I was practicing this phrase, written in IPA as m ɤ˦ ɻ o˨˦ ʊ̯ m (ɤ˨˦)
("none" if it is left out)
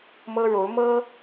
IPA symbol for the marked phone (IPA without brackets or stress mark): ɤ˦